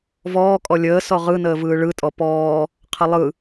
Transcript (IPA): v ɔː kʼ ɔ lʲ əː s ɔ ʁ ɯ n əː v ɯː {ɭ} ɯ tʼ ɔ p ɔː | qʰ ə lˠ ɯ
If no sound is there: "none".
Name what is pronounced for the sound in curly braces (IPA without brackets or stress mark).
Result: ɭ